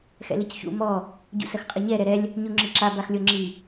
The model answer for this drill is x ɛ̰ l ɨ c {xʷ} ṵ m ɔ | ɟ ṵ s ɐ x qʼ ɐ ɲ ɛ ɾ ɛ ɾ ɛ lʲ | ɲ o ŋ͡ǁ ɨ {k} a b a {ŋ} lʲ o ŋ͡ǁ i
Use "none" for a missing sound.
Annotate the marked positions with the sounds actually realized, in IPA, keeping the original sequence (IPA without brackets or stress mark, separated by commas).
ç, ǁ, x